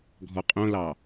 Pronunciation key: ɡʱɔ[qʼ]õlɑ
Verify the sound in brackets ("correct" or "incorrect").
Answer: correct